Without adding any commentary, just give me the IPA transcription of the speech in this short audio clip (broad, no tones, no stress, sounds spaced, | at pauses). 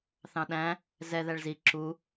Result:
θ ɑ̃ ɗ æ̃ | z ɛ ð æ ɭ z i ǁ u